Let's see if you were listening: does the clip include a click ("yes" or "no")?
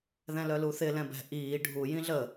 no